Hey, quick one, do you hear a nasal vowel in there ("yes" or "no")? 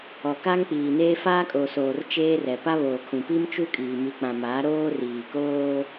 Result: yes